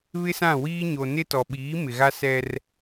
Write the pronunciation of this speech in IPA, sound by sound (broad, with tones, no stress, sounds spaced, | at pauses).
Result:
β ɪ˦ s ã˦˨ w iː˦ ɲ o˨ n ɪ˦ t ɔ˨ ɓ iː˨˦ m ɪ˨ ɣ a˦ s ɛ˦ r